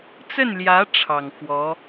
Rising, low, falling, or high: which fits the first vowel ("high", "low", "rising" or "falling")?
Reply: falling